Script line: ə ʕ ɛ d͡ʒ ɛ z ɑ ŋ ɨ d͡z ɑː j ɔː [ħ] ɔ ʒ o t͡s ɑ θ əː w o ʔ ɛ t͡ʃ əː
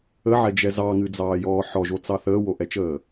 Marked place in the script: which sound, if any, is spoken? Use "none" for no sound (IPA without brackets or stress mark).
ħ